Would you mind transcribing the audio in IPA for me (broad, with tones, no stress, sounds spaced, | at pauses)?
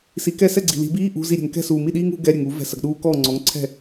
s i˩˥ k ɛ˥˩ s ɛ˥˩ ɡ͡ǀ i̤˨ l i̤˨˩˦ b iː˧˥˧ ʔ ṳ˧˥˧ z i˥˩ ɾʲ ɛ̤˨ ŋ k ɛ̤˥˩ s uː˨ m i˥˩ ɗ iː˦˥ ŋ ṳ˩˥ ɡ ɛ˧˥˧ ɾʲ ɛ˨ ŋ u˨˩˦ v ɛ̤˨ s ɐ˨ ɡ ɗ uː˦˥ k ɔː˥˩ ŋ͡ǀ ɔ˩˥ ŋ ǀʰ ɛ̤˥˩